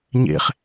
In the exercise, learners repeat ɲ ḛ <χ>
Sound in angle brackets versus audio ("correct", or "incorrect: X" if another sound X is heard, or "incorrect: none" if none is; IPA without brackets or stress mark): correct